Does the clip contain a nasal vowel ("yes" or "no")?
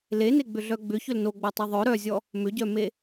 no